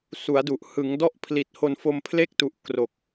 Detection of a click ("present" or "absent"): absent